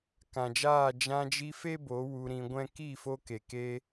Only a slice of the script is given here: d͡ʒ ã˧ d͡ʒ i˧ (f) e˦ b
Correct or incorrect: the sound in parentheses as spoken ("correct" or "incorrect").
correct